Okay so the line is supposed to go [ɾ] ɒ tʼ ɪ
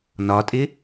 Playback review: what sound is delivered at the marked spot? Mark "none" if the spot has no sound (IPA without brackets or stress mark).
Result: n